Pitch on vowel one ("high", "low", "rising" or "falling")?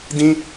high